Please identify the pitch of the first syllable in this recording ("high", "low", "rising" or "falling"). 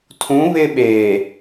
rising